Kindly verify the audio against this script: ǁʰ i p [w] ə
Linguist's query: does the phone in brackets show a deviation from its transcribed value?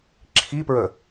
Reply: yes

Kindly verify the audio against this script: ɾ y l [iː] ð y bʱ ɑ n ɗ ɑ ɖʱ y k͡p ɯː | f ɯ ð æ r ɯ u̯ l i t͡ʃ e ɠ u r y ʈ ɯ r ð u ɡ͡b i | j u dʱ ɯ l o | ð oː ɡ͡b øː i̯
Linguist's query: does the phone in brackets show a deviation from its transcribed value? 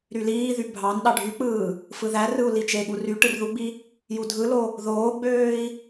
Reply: no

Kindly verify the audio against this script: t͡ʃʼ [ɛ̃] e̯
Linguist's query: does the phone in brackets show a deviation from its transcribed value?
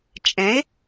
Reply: no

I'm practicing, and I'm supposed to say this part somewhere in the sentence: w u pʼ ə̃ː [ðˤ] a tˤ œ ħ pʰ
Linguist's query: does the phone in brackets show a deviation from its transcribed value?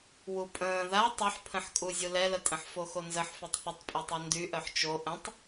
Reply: yes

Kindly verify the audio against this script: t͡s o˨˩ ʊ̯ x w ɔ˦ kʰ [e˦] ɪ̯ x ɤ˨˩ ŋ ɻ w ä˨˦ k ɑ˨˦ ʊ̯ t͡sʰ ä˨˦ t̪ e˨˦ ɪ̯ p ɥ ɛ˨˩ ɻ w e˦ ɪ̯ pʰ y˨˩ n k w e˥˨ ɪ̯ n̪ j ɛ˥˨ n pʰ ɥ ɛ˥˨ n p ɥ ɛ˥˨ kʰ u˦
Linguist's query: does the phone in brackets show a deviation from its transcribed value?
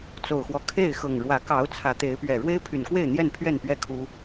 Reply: yes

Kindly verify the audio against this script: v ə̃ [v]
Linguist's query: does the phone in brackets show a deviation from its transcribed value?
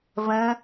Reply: yes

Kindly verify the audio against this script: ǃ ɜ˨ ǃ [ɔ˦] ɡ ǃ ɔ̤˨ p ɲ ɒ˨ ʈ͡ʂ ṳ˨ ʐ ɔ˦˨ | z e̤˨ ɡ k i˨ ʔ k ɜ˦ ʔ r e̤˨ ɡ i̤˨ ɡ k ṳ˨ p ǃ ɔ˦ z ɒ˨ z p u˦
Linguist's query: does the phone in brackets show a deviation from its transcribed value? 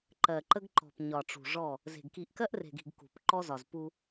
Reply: yes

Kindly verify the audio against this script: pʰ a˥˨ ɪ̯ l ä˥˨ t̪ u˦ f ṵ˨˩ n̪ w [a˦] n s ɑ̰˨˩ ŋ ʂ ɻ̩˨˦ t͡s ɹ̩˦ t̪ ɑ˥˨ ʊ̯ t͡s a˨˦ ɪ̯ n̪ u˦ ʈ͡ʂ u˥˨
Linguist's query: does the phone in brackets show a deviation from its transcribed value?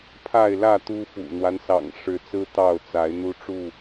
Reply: no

